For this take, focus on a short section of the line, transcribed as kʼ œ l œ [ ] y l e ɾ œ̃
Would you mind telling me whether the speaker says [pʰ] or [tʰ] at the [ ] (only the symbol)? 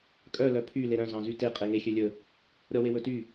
pʰ